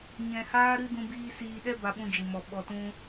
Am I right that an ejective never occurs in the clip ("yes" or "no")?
yes